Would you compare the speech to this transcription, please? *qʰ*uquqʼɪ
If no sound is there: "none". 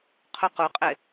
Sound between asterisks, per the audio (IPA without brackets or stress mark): qʰ